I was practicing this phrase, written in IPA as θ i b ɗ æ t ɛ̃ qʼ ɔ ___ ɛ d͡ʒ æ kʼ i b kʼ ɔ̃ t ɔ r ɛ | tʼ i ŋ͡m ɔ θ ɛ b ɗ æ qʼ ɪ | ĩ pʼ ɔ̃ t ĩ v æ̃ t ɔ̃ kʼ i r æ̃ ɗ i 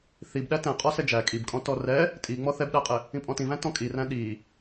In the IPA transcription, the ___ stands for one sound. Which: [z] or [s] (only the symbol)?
s